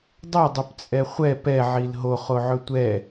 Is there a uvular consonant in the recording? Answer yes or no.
yes